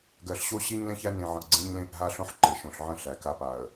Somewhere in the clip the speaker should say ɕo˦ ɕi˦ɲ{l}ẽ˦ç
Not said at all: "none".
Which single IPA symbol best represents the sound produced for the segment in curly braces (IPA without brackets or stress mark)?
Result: l